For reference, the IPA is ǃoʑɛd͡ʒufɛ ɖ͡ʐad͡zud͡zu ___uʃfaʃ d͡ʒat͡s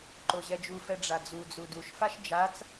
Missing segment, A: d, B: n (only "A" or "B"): A